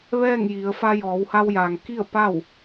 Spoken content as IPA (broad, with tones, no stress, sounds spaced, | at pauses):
ʋ ɛː˥˨ ŋ j i˩˧ ə̯ f a˧ j ɔː˩˧ w h a˧ w j aː˩ ŋ k i˥˨ ə̯ p a˥˨ w